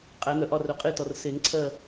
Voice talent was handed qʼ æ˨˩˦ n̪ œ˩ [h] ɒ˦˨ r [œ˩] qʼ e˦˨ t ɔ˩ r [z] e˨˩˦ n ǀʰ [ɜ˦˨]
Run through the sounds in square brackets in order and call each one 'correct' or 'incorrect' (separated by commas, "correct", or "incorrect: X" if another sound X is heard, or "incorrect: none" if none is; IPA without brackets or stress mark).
incorrect: ʔ, incorrect: œ˨˩˦, incorrect: s, correct